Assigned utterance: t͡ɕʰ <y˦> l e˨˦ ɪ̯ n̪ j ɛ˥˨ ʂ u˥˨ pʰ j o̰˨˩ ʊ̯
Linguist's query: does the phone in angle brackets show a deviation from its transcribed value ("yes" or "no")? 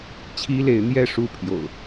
yes